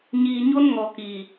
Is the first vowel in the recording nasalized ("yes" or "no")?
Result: no